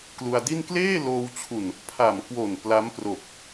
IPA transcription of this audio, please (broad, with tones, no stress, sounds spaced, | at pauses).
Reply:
k l u˧ a̯ d i˥˩ n k l eː˥˩ l oː˧ w t͡ɕʰ u˨˩ n | pʰ a˨˩ m k w o˨˩ n p l a˦˥ m p r o˨˩ k̚